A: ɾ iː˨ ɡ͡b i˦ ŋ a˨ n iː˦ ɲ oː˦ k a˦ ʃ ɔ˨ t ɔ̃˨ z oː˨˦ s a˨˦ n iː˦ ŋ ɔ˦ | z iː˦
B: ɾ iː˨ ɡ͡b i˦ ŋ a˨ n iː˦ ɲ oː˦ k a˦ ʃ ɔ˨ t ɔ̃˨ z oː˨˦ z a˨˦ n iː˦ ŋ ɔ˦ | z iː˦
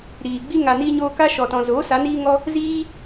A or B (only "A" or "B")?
A